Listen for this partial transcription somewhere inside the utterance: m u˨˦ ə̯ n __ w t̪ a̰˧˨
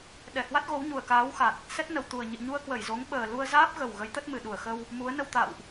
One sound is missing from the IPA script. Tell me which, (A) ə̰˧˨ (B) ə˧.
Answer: B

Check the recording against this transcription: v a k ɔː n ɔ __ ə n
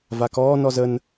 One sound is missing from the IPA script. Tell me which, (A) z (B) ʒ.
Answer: A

